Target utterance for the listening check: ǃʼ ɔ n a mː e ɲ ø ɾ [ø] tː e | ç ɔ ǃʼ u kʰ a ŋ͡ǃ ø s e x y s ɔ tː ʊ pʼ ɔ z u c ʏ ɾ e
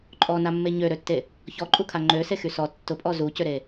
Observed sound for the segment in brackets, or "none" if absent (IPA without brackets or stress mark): ø